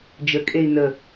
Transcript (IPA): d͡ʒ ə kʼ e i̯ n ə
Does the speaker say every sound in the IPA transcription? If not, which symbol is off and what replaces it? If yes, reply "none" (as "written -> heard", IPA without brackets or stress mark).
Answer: none